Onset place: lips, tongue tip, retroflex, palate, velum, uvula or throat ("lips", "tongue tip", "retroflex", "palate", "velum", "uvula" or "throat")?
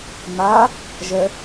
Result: lips